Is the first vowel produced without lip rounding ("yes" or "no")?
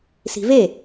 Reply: yes